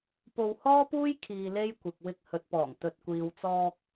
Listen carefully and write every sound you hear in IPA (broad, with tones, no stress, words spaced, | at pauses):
po˧whɔː˥puː˥j kʰiː˧le˥jkʷɪ˨k̚ wɪ˧k̚ hɵ˨t̚pɔː˨˩ŋ t̪ɵ˨t̚ kʷiː˨wt͡sɔː˧k̚